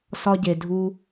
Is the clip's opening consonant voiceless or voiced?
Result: voiceless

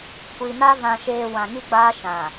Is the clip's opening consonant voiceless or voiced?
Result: voiceless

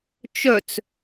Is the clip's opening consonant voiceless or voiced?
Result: voiceless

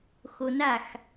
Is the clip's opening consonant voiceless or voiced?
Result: voiceless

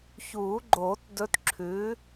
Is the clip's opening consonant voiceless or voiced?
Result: voiceless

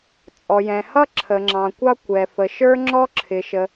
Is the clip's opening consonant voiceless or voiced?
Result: voiceless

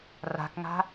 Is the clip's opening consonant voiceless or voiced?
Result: voiced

